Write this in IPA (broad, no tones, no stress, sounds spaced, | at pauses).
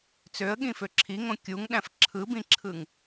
t͡s ø ə̯ ɠ ĩ f ø ǁʰ i ŋ õ kʲ u ŋ ɗ æ̃ f ǁʰ ɯ b ĩ ǁʰ ɯ ŋ